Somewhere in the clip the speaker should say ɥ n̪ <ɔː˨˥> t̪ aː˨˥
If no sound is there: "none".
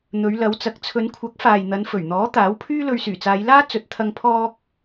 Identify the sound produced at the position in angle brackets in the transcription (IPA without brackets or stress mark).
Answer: ɔː˨˥